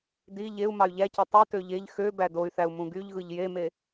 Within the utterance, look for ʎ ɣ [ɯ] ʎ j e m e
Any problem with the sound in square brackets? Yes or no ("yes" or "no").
no